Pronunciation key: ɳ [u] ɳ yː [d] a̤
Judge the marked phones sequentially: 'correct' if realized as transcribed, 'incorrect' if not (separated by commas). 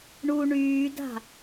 correct, correct